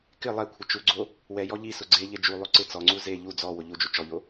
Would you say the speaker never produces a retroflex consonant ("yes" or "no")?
yes